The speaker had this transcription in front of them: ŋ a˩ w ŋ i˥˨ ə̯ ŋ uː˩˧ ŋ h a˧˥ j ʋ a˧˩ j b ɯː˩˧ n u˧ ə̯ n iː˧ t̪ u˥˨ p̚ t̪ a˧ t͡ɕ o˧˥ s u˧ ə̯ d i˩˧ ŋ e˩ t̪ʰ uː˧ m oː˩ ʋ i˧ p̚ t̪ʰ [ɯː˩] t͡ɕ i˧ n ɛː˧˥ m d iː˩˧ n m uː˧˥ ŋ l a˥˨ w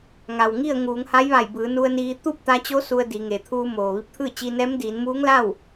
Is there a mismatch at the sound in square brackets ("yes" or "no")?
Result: yes